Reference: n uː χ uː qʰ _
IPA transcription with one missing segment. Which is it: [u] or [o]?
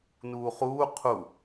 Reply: u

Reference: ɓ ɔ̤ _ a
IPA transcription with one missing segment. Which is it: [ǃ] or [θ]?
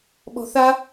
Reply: θ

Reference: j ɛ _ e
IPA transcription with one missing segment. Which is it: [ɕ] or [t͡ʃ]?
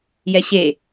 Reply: ɕ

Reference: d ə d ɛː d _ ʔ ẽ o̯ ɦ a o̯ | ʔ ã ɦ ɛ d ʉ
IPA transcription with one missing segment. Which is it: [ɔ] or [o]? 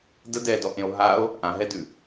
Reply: ɔ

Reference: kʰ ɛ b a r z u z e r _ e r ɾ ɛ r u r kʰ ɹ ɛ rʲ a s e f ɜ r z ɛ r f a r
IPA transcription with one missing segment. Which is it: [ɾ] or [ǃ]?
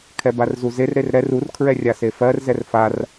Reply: ɾ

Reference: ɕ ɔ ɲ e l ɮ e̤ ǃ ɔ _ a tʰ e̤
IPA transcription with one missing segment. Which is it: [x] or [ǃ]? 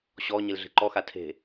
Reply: x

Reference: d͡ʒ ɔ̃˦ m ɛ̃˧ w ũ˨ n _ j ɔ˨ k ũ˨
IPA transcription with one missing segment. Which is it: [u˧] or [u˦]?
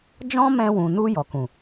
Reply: u˧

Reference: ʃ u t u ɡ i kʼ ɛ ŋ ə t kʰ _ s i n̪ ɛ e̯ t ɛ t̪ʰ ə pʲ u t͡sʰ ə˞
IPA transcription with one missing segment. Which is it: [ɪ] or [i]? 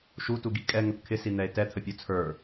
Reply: ɪ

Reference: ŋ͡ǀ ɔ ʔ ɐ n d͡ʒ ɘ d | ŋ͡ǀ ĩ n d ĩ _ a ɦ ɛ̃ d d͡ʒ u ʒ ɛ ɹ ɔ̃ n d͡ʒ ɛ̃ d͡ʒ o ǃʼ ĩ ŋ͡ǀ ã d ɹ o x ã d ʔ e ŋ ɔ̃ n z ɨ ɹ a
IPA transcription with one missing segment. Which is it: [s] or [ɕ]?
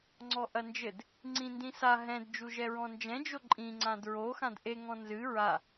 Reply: s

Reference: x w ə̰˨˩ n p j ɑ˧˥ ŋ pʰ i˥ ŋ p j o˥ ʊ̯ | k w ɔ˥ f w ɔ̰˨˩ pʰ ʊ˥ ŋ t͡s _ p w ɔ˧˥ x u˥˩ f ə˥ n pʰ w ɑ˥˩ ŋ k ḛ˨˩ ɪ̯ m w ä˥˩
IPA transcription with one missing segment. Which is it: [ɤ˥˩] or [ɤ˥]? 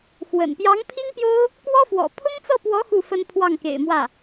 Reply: ɤ˥˩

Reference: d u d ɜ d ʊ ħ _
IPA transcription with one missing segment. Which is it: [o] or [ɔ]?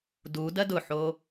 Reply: o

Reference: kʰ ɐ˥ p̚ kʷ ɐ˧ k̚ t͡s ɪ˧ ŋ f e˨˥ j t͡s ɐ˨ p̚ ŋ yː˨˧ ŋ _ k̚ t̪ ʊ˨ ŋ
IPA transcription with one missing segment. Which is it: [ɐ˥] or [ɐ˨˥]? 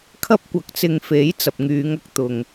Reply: ɐ˥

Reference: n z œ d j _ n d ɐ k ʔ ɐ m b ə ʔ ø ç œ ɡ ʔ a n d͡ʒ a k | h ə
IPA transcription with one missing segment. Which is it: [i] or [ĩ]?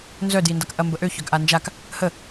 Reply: i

